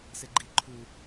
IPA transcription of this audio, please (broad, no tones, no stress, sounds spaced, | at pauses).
s e ɡ͡ǃ i ǃʰ u